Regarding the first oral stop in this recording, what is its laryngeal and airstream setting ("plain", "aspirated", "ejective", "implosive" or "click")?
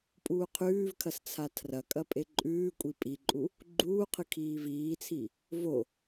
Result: ejective